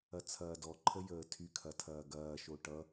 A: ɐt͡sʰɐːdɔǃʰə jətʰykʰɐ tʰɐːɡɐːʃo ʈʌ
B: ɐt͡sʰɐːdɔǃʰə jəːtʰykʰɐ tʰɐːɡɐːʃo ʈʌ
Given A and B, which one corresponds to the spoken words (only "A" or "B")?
B